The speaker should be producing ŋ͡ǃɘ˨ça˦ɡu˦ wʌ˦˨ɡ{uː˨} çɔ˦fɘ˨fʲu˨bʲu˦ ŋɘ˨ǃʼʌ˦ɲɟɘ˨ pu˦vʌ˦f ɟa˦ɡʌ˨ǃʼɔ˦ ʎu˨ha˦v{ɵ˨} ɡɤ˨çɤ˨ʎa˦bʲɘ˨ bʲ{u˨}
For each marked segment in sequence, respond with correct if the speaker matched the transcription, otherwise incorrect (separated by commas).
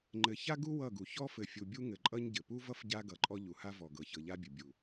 incorrect, incorrect, correct